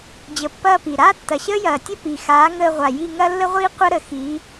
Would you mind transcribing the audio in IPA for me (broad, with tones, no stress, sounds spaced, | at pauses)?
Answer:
d͡ʑ ə˨˥ pː ɐː˥˧ p i˨˩ ɾ aː˥ tː ɐ˨˩ ɕ əː˥ j ɐː˨˩ tʲ ə˥ p i˨˩ x aː˨˥ ŋ əː˥˧ ʁʷ a˨˩ j i˥˧ ŋ ɐ˥ lː ə˥ ʁʷ iː˥ qʷ ɐ˥ ɾ ə˨˩ x iː˨˥